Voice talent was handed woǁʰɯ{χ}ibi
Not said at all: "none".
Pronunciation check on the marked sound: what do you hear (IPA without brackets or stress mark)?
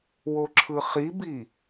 χ